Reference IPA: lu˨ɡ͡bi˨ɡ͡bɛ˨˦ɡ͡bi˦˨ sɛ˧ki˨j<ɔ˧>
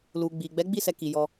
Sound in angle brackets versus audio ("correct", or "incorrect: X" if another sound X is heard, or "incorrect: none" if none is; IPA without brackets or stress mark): correct